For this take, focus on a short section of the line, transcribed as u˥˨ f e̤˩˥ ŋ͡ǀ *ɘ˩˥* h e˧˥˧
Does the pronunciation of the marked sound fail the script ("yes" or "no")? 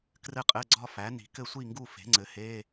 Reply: no